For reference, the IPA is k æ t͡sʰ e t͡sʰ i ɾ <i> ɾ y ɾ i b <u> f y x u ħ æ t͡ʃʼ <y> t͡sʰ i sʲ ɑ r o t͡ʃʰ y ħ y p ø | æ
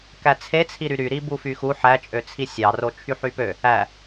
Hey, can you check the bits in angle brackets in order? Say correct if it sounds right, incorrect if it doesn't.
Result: incorrect: y, correct, incorrect: ø

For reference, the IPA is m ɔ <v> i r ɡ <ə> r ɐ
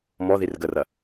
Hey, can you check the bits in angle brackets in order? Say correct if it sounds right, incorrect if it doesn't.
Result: incorrect: ð, correct

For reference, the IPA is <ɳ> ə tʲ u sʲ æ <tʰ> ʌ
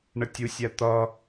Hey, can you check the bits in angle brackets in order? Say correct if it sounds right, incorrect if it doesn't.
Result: correct, incorrect: t̪

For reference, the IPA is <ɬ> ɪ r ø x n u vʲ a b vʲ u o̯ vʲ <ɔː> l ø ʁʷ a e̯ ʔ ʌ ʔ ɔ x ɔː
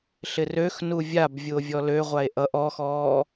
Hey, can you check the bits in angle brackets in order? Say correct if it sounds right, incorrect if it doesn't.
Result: correct, incorrect: ɔ

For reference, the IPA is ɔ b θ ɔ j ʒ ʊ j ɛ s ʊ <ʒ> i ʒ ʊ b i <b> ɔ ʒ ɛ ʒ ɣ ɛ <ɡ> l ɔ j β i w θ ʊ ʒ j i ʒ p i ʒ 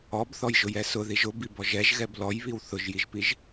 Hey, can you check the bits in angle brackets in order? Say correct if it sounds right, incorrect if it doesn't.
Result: incorrect: ð, correct, incorrect: b

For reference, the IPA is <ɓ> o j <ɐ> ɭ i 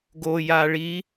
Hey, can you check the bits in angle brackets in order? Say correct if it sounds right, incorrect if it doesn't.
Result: incorrect: ɡ, incorrect: a

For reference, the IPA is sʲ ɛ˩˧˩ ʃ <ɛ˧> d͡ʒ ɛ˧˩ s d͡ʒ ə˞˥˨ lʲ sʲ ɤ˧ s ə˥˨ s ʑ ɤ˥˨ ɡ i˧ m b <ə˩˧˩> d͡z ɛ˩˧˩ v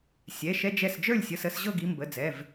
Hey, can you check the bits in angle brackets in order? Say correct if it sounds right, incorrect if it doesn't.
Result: correct, correct

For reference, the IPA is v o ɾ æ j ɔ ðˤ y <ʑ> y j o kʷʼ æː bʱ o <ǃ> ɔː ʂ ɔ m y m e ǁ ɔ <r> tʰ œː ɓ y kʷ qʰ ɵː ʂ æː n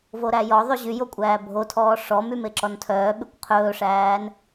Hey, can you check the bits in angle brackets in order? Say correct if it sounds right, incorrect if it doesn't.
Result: correct, incorrect: tʰ, incorrect: n

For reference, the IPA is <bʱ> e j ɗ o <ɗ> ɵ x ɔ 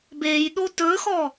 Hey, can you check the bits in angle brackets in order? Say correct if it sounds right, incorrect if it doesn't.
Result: incorrect: b, incorrect: t

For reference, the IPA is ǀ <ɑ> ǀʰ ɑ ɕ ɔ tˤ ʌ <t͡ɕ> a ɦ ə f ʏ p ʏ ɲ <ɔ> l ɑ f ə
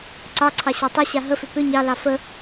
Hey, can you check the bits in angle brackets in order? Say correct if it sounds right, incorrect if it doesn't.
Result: correct, incorrect: ɕ, incorrect: ɑ

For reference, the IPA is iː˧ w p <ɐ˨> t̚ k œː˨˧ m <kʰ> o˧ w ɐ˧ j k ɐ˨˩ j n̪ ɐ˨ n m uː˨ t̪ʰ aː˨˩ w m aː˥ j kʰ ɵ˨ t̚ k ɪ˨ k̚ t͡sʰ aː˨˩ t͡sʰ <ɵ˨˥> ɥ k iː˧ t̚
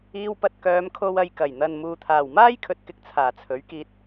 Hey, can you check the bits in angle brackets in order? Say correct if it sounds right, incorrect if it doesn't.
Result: incorrect: ɐ˧, correct, correct

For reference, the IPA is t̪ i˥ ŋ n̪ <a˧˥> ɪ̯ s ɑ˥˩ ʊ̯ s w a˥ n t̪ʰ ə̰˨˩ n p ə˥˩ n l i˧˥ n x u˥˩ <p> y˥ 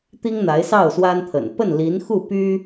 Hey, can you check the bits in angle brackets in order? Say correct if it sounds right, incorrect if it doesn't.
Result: correct, correct

